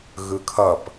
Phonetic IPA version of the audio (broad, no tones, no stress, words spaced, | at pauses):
ɣɯkʰʌp